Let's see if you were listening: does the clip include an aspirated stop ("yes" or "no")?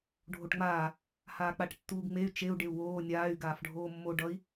no